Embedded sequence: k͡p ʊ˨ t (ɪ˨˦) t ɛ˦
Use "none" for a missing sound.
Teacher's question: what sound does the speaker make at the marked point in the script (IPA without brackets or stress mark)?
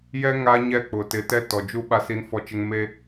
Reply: ɪ˨˦